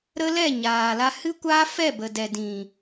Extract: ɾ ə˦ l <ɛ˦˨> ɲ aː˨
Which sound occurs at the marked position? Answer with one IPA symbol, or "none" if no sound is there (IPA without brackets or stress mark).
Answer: ɛ˦˨